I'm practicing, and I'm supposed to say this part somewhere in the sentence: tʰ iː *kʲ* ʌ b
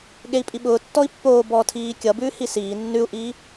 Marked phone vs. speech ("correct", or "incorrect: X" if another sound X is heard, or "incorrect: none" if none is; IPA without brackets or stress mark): correct